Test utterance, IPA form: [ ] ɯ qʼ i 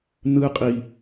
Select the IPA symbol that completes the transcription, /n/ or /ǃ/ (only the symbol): n